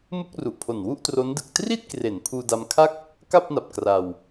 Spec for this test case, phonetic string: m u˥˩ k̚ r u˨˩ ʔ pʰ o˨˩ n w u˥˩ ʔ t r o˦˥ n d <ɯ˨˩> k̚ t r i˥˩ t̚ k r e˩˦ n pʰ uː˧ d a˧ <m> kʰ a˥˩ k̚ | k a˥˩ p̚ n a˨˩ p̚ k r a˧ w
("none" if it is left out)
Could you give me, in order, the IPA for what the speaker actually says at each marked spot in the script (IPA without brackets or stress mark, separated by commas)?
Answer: ɯ˨˩, m